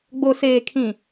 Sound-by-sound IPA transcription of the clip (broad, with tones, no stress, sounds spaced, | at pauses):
ɡ͡b o˨ s eː˨ kʰ ĩ˨